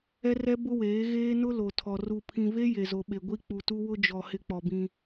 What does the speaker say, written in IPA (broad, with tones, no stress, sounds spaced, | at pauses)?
ɛ˦ r ɛ˦ b ʊ˦ w eː˨˦ ɣ eː˦ n ʊ˦ l o˨ tʰ ɔ˨ r u˨ pʰ ĩ˨ v e˦ j e˨ z o˨ ɓ e˨ ɡʷ i˦ k͡p u˨ t u˦ w ʊ˦ d͡ʒ ɔ˨ h ɪ˦ k͡p ɔ˨ b ĩ˦